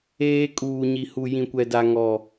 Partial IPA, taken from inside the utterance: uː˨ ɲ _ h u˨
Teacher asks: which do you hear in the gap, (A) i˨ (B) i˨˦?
A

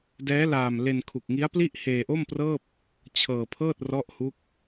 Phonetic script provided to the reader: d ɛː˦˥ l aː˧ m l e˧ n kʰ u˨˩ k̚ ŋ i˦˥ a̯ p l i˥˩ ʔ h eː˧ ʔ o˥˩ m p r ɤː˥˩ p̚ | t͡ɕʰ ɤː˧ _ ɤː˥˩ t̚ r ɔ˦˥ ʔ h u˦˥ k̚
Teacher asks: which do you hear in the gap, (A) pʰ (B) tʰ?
A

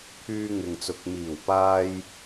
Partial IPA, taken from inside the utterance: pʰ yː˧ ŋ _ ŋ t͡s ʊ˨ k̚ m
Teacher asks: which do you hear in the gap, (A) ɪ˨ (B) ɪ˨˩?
A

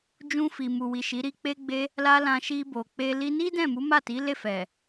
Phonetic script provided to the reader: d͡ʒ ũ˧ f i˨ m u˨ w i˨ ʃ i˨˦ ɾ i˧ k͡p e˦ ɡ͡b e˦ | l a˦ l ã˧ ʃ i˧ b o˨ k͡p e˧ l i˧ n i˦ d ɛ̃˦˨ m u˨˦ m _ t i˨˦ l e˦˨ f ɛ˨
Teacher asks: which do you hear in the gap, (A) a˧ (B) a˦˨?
B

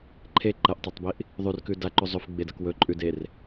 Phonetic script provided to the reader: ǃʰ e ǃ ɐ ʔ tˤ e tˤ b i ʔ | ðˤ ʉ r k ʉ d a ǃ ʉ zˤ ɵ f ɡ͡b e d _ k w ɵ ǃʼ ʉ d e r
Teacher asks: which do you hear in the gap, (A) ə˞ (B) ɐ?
B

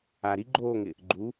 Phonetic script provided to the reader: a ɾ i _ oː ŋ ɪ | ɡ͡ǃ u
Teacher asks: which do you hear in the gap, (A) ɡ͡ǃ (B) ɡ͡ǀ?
A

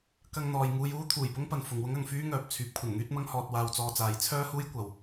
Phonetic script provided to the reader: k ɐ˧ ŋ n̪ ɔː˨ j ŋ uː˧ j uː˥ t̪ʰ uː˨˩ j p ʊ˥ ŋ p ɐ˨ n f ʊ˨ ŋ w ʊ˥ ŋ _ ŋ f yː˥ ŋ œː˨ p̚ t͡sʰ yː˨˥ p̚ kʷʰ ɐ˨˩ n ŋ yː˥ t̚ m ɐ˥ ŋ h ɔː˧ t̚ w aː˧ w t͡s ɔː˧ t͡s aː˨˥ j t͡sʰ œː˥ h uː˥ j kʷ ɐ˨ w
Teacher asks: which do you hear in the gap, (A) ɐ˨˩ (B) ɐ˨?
B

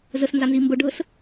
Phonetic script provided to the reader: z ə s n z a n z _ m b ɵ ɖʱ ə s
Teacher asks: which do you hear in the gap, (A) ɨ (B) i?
B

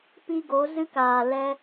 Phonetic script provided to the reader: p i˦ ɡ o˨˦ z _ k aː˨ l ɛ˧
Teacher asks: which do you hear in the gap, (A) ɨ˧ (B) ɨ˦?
A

